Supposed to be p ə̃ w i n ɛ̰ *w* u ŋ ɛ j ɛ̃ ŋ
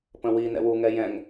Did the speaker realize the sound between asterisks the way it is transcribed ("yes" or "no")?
yes